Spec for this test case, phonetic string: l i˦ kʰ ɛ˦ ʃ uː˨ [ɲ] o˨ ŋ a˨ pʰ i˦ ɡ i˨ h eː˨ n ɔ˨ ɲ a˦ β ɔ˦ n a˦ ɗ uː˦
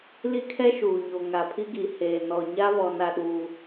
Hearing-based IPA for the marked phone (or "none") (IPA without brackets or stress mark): ɲ